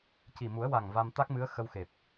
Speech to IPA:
c i˨˩ m u˨˩˦ ə̯ w a˨˩ ŋ v a˧ m t̪ a˦˥ k̚ m ɨ˧˥ ə̯ x ə˧ w x e˨˩ p̚

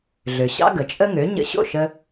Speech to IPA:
ɮ ø˩ ɕ ɑ̰˥ ɡ ə˩ t͡ʃʼ ə˥ ŋ ø˩˥ ɲ ə̰˧ ɕ o̰˥˩ ʃ ə˧

